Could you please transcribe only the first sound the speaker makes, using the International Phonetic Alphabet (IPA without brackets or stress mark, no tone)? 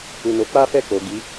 u